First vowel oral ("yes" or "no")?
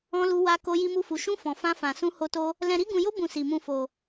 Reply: no